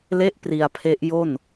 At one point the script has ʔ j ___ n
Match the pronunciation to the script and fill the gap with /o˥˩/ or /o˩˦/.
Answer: o˥˩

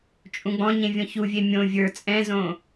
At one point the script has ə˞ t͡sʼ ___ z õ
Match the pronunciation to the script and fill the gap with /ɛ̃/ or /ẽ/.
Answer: ɛ̃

